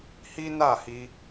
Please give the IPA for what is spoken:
hi˦na˦˨hi˧

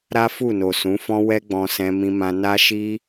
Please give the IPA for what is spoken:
ɾa˦fu˦˨no˨ sũ˨˦fɔ̃˦ wɛ˦ɡ͡bɔ̃˧sɛ̃˧ mĩ˧mã˧ na˦ʃi˦

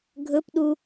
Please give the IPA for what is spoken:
ɡʱɵpɗu

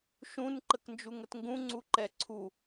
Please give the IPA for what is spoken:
ʃũn ǃəknd͡ʒuŋətŋɡũ ŋ͡ǀuǃɛǀʰu

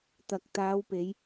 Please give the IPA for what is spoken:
t̪ɐ˨k̚ t̪aː˨˧wpe˨˧j

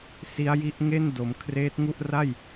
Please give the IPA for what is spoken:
si˦˥a̯ji˦˥ʔŋe˥˩n do˩˦m kʰreː˦˥t̚ŋu˥˩ʔ ra˥˩j

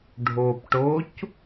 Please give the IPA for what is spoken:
ɖʱopʈoc

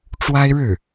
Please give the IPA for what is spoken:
ʈ͡ʂwa˥ɪ̯ɻɻ̩˥˩

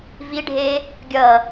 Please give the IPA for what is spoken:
viɖʱe | ɡʲʌ

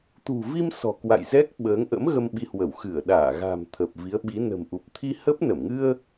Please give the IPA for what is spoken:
t̪ṳ˨˩vi˧m sɔ̤˨˩kwa̰˧˨j zɛ˦˥k̚ɓəː˨˦ŋʔə̰˧˥m ɣə˧mɓi˨˦hwə˧˩w xɨ˧˩ə̯ɗaː˧˩ɣa̤˨˩m t̪ʰə˨˩p̚vi˨˦ə̯ɓi˨˦ nə̤˨˩mʔu˨˩p̚ t̪ʰi˧hə˦˥p̚ nə˧˩mŋɨ˧ə̯

